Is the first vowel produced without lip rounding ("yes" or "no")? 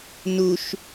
no